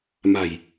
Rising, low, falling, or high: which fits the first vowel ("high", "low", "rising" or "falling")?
low